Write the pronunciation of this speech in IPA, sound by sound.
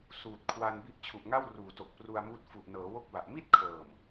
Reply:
s uː˨˩ t̚ kʰ w a˧ n b i˦˥ ʔ t͡ɕʰ u˨˩ ʔ ŋ a˥˩ w r uː˨˩ t o˨˩ k̚ p r u˧ a̯ m uː˦˥ t̚ f u˨˩ ʔ n ɤː˩˦ w o˥˩ k̚ b a˨˩ ʔ m i˥˩ t̚ kʰ ɤː˨˩ m

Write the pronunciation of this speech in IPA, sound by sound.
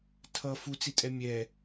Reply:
tʰ ʌ f u t͡s i tʼ ɛ mʲ ɛ

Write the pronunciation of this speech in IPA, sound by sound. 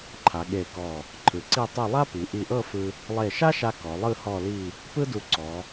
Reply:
ǃʰ a˩˧ ɠ e˧˩ k ɔ˧˩ | ǃʰ ɯ˩˧ ǀ i˥˧ tˤ u˥˧ lˠ a˥ p i˩˧ ʔ i˧˩ ʔ ɤ˥˧ f ɯ˧ | lˠ e˧˩ ʃ a˥ ʃ a˧ k ɔ˩˧ lˠ ɯ˥˧ h ɔ˥˧ l i˥˧ | p ɯ˥ d u˧ ǀ ɔ˩˧

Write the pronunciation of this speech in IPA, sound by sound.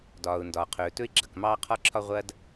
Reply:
d ɒː˩ ʊ̯ n d ɒː˩ qʰ ɵː˩ t ɵ˥ ɪ̯ ɡ͡ǁ ɐ˩ k m ɑː˥ qʰ ɒ˥ ǁʰ ɒ˥ ʁʷ ɐː˥ d

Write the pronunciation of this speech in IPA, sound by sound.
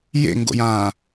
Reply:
j ḛ ŋ ɡ o̰ j ãː

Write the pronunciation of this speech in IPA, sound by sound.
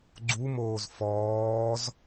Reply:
ɡ͡ǀ u m oː z f ɔː z

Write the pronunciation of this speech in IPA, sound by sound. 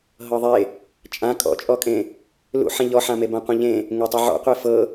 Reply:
ɦ ɤ ðˤ e | t͡ʃʼ ã kʼ ɔ̰ t͡ʃʼ ɔ kʼ ẽ | l ṵ ħ ẽ ʎ ɔ ħ ã m e b ã qʷ ẽ ʎ ẽ | ŋ e tˤ e ʕ ɔ̰ qʷ e f ɤ

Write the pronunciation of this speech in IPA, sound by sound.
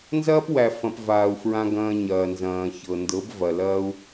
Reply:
n z ɐː˦ p w æ˨ f ɐ̃˨ p v aː˨ u̯ f ɹ ã˧ ɡ ɐ̃ː˧ ɲ ɐː˨ n z ɐ̃ː˨ ç ɤ˨ n d ɤ˨˦ b v ɐ˨ l ɐː˦ u̯

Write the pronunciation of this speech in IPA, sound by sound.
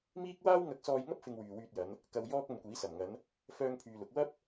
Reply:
m iː˥ k̚ w aː˥ w ŋ ɐ˧ k̚ s ɔː˧ j ŋ ɐ˥ p̚ f ɪ˧ ŋ w yː˨ w yː˧ t̚ j ɐ˨˧ n | k ɐ˧ w j ɔː˥ k̚ ɐ˧ n kʷ iː˨˥ s ɐ˨˩ m ŋ ɐ˨˧ n | f œː˥ ŋ pʰ yː˧ l ʊ˨˥ k̚ w ɐ˥ p̚

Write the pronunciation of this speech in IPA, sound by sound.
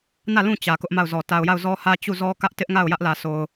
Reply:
n ä˦˨ l ũ˦˨ t͡ɕ ä˨ k ʊ˦ ʔ m a˦˨ ʊ̯ z ɔ˨ t a˨ ʊ̯ j a˦˨ ʊ̯ z ɔ˦ h ä˦ t͡ɕ u˦˨ z ɔ˦ k ä˦ ʔ t ɪ˦ ʔ ŋ a˦˨ ʊ̯ j ä˦ ʔ l ä˨ s o˨ ʊ̯

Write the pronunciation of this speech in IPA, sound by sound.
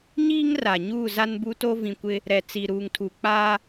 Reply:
ɲ iː˦ ŋ r a˨ ɲ uː˦˨ z a˦ n b u˦ t o˦ v ĩ˨ kʷ ɪ˦ | ɾ ɛ˨ t͡s i˨ ɾ uː˨ ŋ tʰ u˨ k͡p aː˦

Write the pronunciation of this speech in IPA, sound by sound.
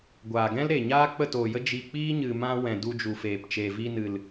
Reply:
ɡʷ aː˨ ɡ ɛ̃˦ l ɾ e˨ ɲ aː˦ k͡p ə˦˨ t oː˨ j ə˦ d͡ʒ i˧ k͡p iː˦ ɲ ɨ˨ m ã˧ w ɛ̃˨ d u˧ d͡ʒ u˨ f eː˨ p t͡ʃ eː˨ v i˧ n ɨ˨ l

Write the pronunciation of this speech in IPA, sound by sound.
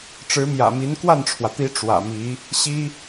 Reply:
ʈ͡ʂ ɻ̩˧˥ m j ä̰˨˩ m i˧˥ n k w a˥˩ n ʈ͡ʂʰ w ä˩ t̪ i˧˥ ʈ͡ʂ w ä̰˨˩ m i˧˥ | ɕ i˥

